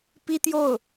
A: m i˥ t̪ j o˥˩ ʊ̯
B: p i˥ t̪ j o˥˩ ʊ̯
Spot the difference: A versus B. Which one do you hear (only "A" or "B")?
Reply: B